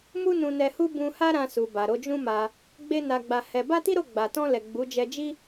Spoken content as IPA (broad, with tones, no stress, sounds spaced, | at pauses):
m u˦ n ũ˧ n ɛ˧ h u˦ b ũ˧ h a˦ ɾ ã˧ s u˨ b a˨ ɾ o˨˦ d͡ʒ ũ˦ m a˧ | ɡ͡b e˦ n a˧ ɡ͡b a˧ h ɛ˧ b a˦ t i˦ ɾ o˦˨ ɡ͡b a˨ t ɔ̃˧ l ɛ˨ ɡ͡b u˨˦ d͡ʒ ɛ˧ d͡ʒ i˦